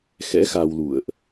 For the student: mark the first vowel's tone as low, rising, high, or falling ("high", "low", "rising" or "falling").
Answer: rising